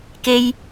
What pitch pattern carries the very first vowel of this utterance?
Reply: high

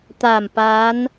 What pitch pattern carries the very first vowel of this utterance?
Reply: low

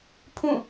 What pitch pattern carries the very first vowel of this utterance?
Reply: falling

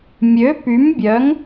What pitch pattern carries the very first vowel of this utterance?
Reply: rising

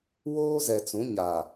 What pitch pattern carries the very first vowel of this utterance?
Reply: high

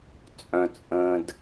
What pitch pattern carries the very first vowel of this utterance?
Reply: low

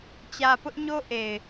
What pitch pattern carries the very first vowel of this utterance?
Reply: low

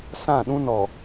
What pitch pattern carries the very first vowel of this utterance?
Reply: falling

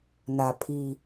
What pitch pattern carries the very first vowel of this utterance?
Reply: low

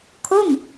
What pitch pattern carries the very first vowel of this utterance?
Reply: falling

